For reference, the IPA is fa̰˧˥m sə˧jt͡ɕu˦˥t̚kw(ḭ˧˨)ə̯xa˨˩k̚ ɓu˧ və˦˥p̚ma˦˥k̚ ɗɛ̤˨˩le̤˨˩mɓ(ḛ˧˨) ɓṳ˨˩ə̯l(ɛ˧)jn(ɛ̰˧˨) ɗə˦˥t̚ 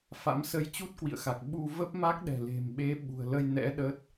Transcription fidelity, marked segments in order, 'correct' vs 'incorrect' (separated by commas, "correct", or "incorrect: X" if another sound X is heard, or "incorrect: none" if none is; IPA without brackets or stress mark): correct, incorrect: e˨˦, incorrect: ə˧, incorrect: ɛ̰˧˥